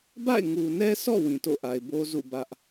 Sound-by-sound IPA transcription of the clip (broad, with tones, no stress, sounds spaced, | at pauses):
b a̰˦˨ ɪ̯ ŋ u˨ n ɛ˦ s ɔ̰˦˨ w ĩ˨ t o̰˦˨ ʔ a˨ ɪ̯ b o˦ z ṵ˦˨ b ä˦ ʔ